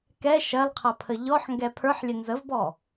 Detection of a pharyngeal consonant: present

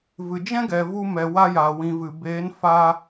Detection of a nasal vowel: present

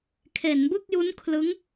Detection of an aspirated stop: present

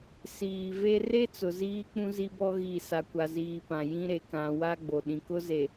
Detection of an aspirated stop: absent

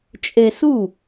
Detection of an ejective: present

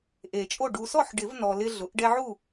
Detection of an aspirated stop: absent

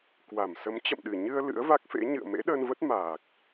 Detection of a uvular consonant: absent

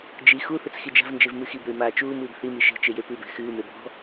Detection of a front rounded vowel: absent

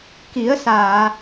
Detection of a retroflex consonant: absent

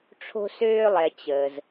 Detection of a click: absent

